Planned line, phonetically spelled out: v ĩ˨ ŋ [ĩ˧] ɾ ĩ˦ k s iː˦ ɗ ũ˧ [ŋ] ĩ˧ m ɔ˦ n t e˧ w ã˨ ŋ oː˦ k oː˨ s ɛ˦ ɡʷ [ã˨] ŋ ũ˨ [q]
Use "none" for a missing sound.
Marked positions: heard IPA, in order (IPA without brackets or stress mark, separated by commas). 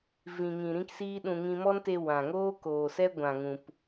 ĩ˨, ŋ, ã˨, p